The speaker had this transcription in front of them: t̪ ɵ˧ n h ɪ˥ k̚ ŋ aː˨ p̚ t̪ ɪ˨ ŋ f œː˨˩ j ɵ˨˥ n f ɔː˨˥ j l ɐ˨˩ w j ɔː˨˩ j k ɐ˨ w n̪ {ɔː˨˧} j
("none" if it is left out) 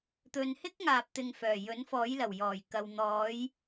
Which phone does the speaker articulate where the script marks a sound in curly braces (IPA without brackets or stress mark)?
ɔː˨˧